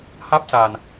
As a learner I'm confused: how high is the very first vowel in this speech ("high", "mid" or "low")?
low